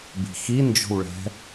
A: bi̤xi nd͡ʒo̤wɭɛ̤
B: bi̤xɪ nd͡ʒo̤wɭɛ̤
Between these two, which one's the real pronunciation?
A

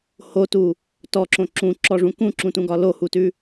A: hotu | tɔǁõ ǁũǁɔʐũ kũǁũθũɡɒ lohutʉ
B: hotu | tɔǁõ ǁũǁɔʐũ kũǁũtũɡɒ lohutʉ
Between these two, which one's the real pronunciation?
B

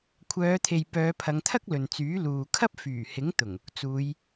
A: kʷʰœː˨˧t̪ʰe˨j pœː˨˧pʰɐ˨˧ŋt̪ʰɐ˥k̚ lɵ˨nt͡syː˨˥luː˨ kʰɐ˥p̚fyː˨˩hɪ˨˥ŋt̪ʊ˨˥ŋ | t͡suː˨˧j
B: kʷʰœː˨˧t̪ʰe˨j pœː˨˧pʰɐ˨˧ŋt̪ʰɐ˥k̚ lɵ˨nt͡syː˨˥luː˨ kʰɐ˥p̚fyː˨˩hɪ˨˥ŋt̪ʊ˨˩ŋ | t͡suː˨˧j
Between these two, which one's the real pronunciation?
B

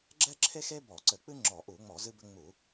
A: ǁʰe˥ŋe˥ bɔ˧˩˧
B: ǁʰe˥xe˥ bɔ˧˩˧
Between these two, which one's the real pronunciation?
B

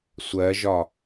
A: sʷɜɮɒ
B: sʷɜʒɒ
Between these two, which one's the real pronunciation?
B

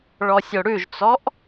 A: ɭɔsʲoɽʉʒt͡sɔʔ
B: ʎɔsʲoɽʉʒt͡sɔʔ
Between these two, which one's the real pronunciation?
A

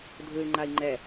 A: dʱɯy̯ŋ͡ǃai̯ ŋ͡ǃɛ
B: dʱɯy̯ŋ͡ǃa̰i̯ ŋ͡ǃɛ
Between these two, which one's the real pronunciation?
A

